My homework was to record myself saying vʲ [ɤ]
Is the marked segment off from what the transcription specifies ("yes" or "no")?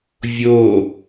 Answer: yes